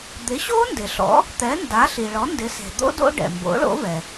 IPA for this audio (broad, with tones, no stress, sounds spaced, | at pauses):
d̪ ɪ˩˥ ɕ o˦˥ n d ɪ˩ ɬ ɔ̰˩˥ | t̪ ɛ˩˥ n d a˩˥ ɬ i˩ ɭ ɔ˩˥ n d ɪ˩˥ s e̤˩ d̪ o̰˦˥ d o̰˦˥ ɖ ɛ̰˩ m b o̰˩˥ ɭ o̰˩˥ v ɛ˩